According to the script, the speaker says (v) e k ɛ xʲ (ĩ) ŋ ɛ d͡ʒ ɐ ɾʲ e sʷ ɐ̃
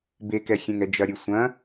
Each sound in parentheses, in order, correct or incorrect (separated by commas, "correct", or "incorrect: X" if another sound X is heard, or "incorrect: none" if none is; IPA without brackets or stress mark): incorrect: b, incorrect: ẽ